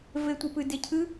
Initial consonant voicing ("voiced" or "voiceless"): voiced